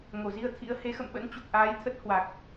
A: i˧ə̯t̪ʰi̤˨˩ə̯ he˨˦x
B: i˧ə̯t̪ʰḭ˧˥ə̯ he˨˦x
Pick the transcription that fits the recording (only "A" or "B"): B